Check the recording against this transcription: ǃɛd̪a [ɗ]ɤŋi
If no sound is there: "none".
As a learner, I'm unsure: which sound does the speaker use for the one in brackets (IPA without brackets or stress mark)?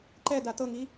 t̪